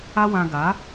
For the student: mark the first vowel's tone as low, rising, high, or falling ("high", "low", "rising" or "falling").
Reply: high